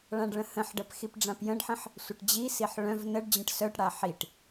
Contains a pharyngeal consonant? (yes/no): yes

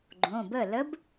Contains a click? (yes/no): yes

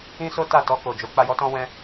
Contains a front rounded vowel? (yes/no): no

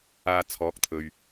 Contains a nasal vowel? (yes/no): no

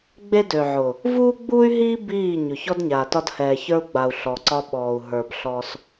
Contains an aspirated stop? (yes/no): no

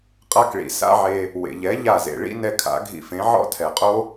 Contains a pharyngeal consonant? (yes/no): yes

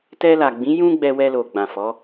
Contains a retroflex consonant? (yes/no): no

